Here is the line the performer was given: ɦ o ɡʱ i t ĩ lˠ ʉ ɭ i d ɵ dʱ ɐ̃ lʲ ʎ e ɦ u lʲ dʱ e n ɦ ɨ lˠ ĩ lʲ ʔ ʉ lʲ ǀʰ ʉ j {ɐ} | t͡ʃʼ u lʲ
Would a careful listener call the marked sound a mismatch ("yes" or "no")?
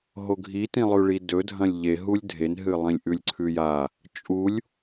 yes